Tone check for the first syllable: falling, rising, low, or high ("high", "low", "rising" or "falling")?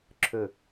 low